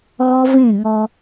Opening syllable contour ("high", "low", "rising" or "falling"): high